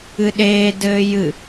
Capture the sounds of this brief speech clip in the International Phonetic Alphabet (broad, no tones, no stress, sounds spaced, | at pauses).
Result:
ɨ ɗ eː d ɘː j ɨ